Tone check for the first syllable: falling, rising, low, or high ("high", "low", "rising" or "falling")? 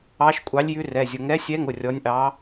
rising